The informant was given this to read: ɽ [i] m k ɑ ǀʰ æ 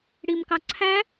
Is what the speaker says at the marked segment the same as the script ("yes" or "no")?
yes